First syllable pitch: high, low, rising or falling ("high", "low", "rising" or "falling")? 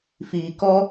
low